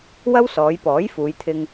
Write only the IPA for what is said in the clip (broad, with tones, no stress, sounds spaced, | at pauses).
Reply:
w ɐ˥ w s ɔː˨˧ j p ɔː˨˥ j f uː˨˧ j t̪ʰ ɪ˧ ŋ